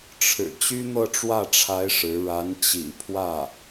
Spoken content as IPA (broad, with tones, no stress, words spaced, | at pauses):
ʈ͡ʂʰɻ̩˨˩ t͡ɕy˥n̪ɤ˥˧ʈ͡ʂwä˥˩ʈ͡ʂʰa˧˥ɪ̯ ʂɻ̩˧˥ ɻa˧˥n t͡ɕḭ˨˩pʰwä˥˩